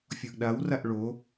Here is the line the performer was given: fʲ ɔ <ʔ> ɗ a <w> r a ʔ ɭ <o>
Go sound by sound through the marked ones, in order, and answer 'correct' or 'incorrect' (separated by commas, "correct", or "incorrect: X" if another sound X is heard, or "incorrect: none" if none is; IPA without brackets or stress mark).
correct, correct, correct